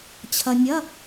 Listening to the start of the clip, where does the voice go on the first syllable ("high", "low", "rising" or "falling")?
low